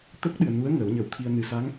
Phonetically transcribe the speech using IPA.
t̪ə˦˥k̚ɗɨ˨˩ə̯nu˧˥ə̯ ŋəː˨˩˦wɲə˨˩˦wt̪ʰi˧ə̯ nɨ˨˩sa˧˥ŋ

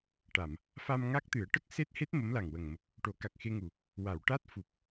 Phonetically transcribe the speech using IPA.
ʈa˨˩˨m | fa˧mŋa˦˥k̚t̪ɨ˨˩˦ə̯ ʈə˦˥k̚ se˦˥t̚he˦˥t̚ mə˧˥mla˨˩ŋwə˨˩ŋ mə˨˩k̚ | ʈo˨˩˦ka˨˩k̚xe˧ŋu˨˩ | wa˨˩˨wʈa˦˥t̚ fu˨˩p̚

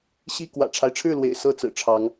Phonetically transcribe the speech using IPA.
ɕi˥˨ kwä̰˨˩ʈ͡ʂʰa˦ɪ̯ʈ͡ʂʰɻ̩˥˨lwḛ˨˩ɪ̯ sɤ˥˨t͡sɹ̩˨˩ʈ͡ʂʰɑ˨˦ŋ

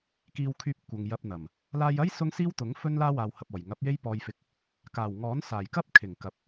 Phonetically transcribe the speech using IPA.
kiː˧wkʰyː˧p̚ kʷɐ˨ŋ jɐ˧p̚n̪ɐ˨˩m | laː˧jɐ˥j sʊ˥ŋsiː˥wt̪ʊ˨˥ŋ fɵ˥nlaː˥ waː˧whɐ˧p̚ɔː˨˩j ŋɐ˨˥p̚ je˥jpɔː˧jfɪ˧k̚ | kaː˨˩wŋɔː˨˥n saː˨˩jkɐ˥p̚ kʰɪ˨˩ŋkɐ˨p̚

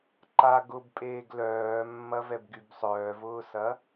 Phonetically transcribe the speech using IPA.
ǃa ɡʊbpʼeːɡ lœːmːɐvɛbɡyb sˤœːvʊːsɐ

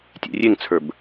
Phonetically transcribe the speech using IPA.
tʲḛrʲeŋt͡sʰə˞b

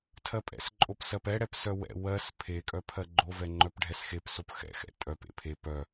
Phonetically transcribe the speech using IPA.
tʰɜpʼɛ̰sǃʼop sɜpɛɽɛp sœwɛ̰ wɜs pʰekʼœpʰɜ ɡ͡ǃovɛŋ͡ǃœp ɖʱɛsxepsop xɛ̰xɛ̰ tʼœp ḛpʰe pœ

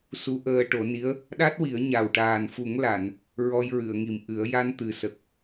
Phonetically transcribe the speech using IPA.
su˧˥ʔəː˧ ʈo˨˩˦ni˧˥ə̯ | ɗa˦˥t̚wi˨˩˦ə̯ ɲa˨˩wʈaː˨˩nfu˨˩˦ŋ la˨˩˨n | ɹɔ˧jɹɨ˨˩˨ə̯ŋi˨˩m ʔɨ˨˩˦ə̯ ja˧n t̪ɨ˨˩sə˨˩k̚

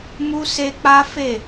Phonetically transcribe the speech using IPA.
mu˦se˦k͡pa˦fe˦˨

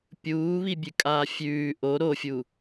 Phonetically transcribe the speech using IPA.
pʲuːβibʲʉkʼaː fʲʉː ʔo ɾofʲu

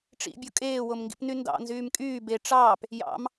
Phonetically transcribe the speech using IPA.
ʈ͡ʂḭbʲo kʼeːwomŋɡḭpny ndɑ̰nzyːm kʼyː be ʈ͡ʂɑːp | jɑ̰m

